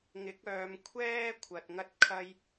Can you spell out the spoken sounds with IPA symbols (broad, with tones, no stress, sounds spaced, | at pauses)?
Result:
ŋ ɪ˨˥ k̚ œː˨˧ m kʷʰ ɛː˥ kʷʰ ɐ˨ t̚ ŋ ɐ˥ t̚ kʰ ɐ˥ j